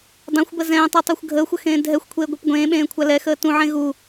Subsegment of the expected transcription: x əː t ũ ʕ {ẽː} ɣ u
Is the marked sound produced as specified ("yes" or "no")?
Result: no